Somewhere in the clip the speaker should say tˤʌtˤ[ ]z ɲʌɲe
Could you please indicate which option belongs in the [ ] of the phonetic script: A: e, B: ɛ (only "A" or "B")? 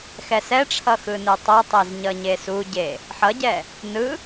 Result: A